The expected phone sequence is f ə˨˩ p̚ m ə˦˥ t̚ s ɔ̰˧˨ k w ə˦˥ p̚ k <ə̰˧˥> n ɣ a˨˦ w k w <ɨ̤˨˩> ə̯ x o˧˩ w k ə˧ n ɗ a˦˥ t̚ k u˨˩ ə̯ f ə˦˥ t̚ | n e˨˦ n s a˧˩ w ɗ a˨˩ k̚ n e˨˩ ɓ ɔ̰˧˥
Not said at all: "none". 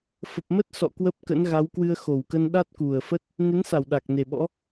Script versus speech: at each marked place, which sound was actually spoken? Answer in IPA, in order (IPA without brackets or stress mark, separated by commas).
ə̰˧˥, ɨ˧